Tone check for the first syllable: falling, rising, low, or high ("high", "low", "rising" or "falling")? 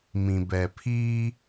low